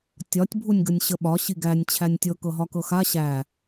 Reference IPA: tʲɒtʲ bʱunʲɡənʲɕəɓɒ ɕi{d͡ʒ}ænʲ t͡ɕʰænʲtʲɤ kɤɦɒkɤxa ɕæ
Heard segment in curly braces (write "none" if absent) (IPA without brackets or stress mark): ɡ